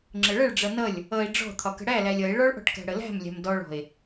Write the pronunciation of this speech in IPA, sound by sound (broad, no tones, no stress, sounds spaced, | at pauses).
ŋ͡ǁ ə ɭ ə ɭ ɖ͡ʐ ʌ n ʌ lʲ | ʌ e̯ ɖ͡ʐ ɔ̤ t̪ʰ ɒ k ə̤ ɽ æ l æ lʲ ʌ e̯ ɭ ɔ ɭ ʔ ɔ̤ ʈ k æ̤ ɽ ə l æ̤ m lʲ æ̤ m d ɔ ɭ ɔ̤ e̯